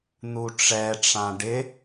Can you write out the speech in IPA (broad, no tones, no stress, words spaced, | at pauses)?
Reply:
n̪uʈ͡ʂɛʈ͡ʂã ɖɪ